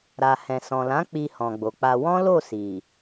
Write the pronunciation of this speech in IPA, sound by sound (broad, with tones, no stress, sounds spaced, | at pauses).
ɾ a˨ h ɛ̃˨ s ɔ̃˨ l ã˨˦ k͡p i˧ h ɔ̃˨ ɡ͡b o˨ k͡p a˧ w ɔ̃˦ l o˦˨ s i˨